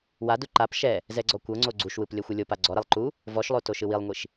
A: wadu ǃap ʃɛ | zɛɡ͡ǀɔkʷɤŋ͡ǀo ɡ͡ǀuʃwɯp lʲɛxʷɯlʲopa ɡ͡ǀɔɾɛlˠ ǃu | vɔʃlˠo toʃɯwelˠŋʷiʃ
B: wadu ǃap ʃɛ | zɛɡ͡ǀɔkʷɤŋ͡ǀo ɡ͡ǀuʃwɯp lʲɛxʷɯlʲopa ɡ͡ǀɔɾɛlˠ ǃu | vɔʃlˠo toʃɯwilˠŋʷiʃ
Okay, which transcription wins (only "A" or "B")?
B